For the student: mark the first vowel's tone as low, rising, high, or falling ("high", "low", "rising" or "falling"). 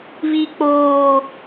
high